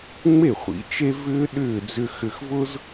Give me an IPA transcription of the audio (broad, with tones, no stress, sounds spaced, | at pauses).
ŋ͡m e˥˩ χʷ ḭ˩˥ t͡ʃ e˥ v ʏː˥ ɗ ʏː˥˩ d͡z ʏ˧ x ʏ˧ x v ʊ˥ z